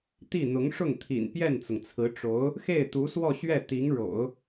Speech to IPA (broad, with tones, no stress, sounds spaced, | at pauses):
t̪ i˥˩ n̪ ʊ˧˥ ŋ ʂ ʊ˥˩ ŋ t̪ʰ ḭ˨˩ n p j ɛ˥˩ n t͡s ʊ˩ ŋ t͡sʰ ɹ̩˧˥ ʈ͡ʂ o˧˥ ʊ̯ | x e˥˩ ɪ̯ t̪ u˧˥ s w ɔ˥˧ ɕ ɥ ɛ˥˩ t̪ i˧˥ ŋ ɻ o̰˨˩˦ ʊ̯